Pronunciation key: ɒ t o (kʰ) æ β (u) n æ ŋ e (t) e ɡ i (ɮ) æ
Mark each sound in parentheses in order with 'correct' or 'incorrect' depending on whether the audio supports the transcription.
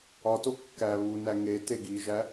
incorrect, correct, correct, incorrect

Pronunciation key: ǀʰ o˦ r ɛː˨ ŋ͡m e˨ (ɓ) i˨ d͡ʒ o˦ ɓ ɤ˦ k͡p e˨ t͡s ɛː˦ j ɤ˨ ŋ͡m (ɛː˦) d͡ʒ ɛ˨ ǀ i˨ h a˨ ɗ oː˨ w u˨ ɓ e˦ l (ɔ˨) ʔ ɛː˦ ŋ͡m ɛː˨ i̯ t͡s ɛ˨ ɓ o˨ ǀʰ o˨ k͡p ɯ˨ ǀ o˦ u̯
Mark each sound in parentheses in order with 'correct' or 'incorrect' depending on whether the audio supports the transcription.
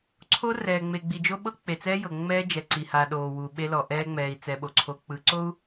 incorrect, correct, correct

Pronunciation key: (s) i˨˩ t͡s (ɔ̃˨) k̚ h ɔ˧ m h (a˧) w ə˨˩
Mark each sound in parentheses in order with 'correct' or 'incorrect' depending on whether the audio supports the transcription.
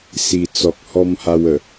correct, incorrect, correct

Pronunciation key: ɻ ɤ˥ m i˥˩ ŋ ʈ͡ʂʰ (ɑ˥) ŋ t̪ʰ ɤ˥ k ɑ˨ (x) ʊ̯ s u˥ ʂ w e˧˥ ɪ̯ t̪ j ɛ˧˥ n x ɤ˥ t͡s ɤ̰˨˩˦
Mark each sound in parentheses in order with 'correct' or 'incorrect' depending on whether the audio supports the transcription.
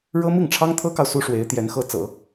correct, incorrect

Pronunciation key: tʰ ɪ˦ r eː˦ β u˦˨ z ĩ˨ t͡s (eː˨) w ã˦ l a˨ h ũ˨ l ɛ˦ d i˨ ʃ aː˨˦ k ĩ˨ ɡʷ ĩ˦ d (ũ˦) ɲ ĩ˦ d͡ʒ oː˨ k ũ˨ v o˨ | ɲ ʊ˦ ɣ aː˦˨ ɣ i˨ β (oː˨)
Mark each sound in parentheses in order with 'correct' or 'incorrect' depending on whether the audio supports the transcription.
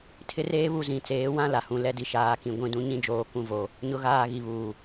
incorrect, correct, incorrect

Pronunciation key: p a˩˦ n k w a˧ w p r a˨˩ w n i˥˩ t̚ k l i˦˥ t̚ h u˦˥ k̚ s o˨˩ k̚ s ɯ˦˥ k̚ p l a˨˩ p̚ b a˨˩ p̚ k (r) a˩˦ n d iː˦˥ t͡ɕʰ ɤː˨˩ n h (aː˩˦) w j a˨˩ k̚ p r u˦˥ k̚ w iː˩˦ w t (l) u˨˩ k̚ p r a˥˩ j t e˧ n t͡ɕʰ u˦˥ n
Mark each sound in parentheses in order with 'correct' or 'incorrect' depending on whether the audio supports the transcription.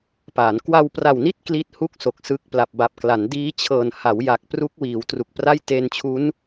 incorrect, incorrect, incorrect

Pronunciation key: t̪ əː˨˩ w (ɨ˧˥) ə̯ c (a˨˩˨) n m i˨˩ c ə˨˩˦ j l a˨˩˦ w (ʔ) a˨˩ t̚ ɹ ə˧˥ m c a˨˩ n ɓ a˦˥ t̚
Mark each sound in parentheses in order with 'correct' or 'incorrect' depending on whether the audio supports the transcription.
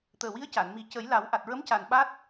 incorrect, correct, correct

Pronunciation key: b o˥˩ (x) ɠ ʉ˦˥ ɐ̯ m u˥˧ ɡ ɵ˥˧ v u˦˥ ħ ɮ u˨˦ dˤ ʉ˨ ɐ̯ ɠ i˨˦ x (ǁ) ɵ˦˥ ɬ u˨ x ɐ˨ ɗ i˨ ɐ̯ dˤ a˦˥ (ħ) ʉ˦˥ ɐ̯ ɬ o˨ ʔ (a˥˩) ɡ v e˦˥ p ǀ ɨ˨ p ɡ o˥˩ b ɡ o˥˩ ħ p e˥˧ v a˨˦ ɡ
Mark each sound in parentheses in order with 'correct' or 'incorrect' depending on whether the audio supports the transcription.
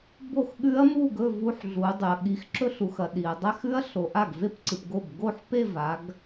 correct, correct, incorrect, correct

